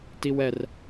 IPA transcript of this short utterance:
t i w ɛ r

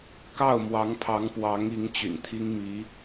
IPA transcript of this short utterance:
k ɑ˥˩ ʊ̯ m w ɑ˧˥ ŋ pʰ ɑ˧˥ ŋ p w ɑ˧˥ ŋ i˧˥ ŋ t͡ɕ y̰˨˩ n t̪ʰ i˥ ŋ m i˧˥

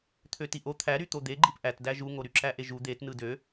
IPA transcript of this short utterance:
t̪ʰ ø t i ʔ o t̪ʰ æ ɾ y t̪ o d̪ e ɡ͡ǃ i p ʔ æ t d æ ʒ u ŋ o ɾ y ǁ æ ʔ e ʒ u d̪ e t n ɯ d ø

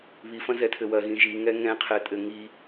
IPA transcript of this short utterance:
β i f ɐ̃ z ɛ tʰ ɘ w ɐ ɣ ĩ ʒ i ŋ ɛ ŋ ɛ̃ qʰ ɛ tʼ ɘ ŋ i

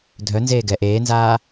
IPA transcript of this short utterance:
dʱ œ n z eː ɡ ɛ ʔ eː n z aː

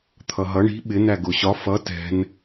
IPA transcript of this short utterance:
t̪ʰ ʌ ɦ ʌ ɳ i̤ ɓ ɪ n æ ɡ ʊ ɕ ɒ f ʌ t ɛ̤ n

